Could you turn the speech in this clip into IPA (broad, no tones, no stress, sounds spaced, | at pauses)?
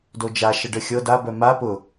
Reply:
d o d͡ʒ a ʃ ə ɖ ə xʲ ɤ d a b œ m a p ʊ